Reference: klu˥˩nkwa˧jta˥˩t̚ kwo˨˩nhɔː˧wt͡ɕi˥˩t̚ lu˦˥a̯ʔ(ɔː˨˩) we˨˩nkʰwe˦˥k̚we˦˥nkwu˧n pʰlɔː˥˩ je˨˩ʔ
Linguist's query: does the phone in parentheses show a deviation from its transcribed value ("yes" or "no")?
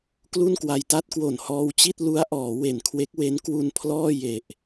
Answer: yes